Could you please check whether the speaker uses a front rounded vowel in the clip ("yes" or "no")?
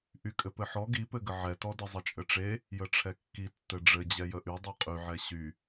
yes